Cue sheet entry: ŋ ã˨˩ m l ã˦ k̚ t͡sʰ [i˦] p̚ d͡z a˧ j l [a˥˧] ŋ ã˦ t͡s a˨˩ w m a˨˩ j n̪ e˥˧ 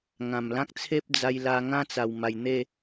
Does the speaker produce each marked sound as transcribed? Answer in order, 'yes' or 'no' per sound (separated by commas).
no, no